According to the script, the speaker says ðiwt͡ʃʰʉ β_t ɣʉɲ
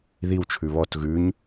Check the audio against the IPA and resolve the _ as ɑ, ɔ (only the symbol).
ɔ